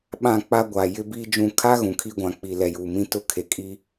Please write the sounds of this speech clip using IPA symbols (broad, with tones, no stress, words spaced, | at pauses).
ɓã˦˨k͡pa˦ ɡʷa˨ jɪ˦biː˦d͡ʒũ˦˨ kʰa˦ ɣũ˨kʰi˦ɡʷã˨ k͡pi˨ lɛ˨juː˨ mĩ˦tʊ˦˨kʰe˨ kʼi˦